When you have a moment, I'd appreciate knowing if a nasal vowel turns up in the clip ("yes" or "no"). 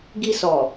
no